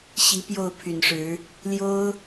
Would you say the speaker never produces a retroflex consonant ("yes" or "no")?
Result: no